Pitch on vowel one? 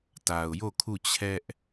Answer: low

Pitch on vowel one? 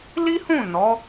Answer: high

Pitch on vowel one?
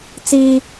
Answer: high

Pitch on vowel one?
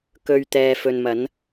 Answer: low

